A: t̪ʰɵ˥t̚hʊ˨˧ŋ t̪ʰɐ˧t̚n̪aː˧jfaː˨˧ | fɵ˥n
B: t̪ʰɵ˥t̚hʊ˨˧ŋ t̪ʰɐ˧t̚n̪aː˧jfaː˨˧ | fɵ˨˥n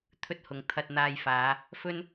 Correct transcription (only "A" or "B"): A